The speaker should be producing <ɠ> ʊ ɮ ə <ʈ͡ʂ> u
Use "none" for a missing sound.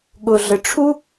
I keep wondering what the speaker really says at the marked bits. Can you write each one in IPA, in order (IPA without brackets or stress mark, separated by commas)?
ɠ, ʈ͡ʂʰ